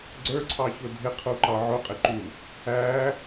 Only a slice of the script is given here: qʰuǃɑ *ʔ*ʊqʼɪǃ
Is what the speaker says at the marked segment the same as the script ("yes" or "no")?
no